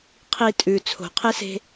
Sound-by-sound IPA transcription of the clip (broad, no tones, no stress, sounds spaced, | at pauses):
qʰ i tʼ ʉ t͡sʰ o̤ qʰ e s e̤